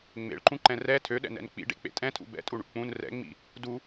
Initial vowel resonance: oral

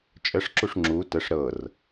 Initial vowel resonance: oral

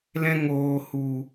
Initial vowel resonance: nasal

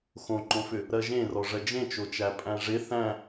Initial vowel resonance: nasal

